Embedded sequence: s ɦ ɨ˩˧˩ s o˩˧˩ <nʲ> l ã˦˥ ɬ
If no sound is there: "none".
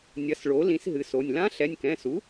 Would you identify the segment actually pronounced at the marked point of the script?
nʲ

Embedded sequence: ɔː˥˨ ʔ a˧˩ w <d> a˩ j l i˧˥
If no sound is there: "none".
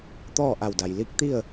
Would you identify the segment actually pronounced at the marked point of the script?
d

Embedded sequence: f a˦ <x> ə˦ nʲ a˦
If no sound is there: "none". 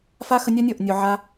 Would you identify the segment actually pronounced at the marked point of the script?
x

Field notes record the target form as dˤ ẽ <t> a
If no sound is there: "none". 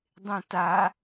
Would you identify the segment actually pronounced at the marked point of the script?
t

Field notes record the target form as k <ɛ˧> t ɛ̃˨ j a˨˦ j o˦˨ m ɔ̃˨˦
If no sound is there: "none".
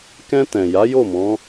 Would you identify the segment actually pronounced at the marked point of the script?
ɛ̃˧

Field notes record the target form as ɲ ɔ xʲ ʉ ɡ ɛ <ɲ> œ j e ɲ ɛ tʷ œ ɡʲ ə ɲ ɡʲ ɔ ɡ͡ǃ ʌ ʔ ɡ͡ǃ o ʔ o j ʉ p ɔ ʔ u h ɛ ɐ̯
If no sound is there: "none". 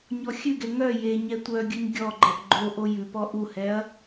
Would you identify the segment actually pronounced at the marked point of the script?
ŋ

